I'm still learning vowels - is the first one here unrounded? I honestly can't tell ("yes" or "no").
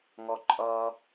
no